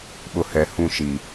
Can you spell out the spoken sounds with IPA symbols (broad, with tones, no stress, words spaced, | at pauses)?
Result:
ɓʊ˨hɛ˨ hũ˦˨ʃi˨